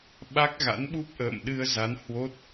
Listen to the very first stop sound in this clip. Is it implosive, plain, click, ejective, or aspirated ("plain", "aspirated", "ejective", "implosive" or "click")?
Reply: implosive